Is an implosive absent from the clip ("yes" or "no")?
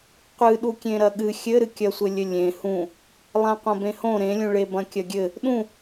no